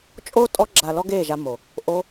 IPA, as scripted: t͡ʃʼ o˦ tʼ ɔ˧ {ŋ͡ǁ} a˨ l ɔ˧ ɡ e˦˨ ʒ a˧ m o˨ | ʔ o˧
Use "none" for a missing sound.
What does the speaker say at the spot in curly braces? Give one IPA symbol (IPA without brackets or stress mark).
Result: ɡ͡ǁ